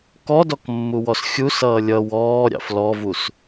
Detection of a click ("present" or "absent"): absent